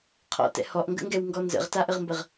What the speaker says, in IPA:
qʰ ɔ̰ t ɛ̰ h ɔ ʔ ŋ ɡ ə̰ ŋ ɡ ɛ w ŋ ɡ ɔ n z ə̰ ʁ t a ʔ ə ʁ m b ə ʁ

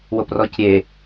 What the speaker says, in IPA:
w o p r ɔ c ɾʲ e

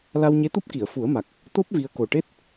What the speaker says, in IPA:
l a˧ w ɲ e˧˥ t̪ u˦˥ p̚ k i˨˩˨ ə̯ f u˨˩˦ ə̯ m a˨˩ k̚ | t̪ o˦˥ p̚ v i˧ ə̯ k o˨˩ ʈ e˦˥ t̚

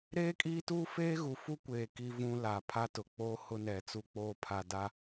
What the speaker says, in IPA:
ɾ eː˦ kʼ iː˦ t uː˦ f eː˦ ɣ u˨ f u˦ kʷ eː˨ k i˦ v ũ˦ l a˨ pʰ a˦ t ʊ˨ k͡p oː˦ h ʊ˦ n ɛ˨ t͡s u˦ k͡p oː˦ pʰ a˨ d a˦

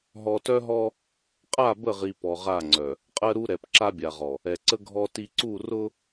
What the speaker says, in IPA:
ɦ ɔ˨ t œ˦ ɦ ɔ˦ | qʼ a˦˨ b ə˦˨ ʁ i˨ p ɔ˨ ʁ a˦˨ ŋ͡ǀ œ˨ | qʼ ɜ˦ ɾ u˦ ɾ ɛ˨ p ǁ a˦ bʲ a˨ ʁ ɔ˨ | ɛ˨ ǀ ə˦ ɡʱ ɔ˦ t i˦ ǀ u˦˨ r ʊ˦

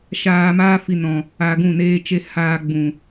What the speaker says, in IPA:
ʃ aː˧ m aː˦ f i˧ n ɔ̃˨ | a˧ ɡ ũ˦˨ n eː˦ t͡ʃ e˦ h aː˧ ɡ͡b ũ˨

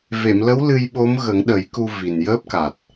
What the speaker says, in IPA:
v e˨˩˨ m l ə˧˥ w l ɨ˧ j ɓ o˧˥ m ɣ ə˨˩˦ ŋ ɗ ə˨˩˦ j k u˧ v i˨˩ n j əː˦˥ p̚ k a˨˩ t̚

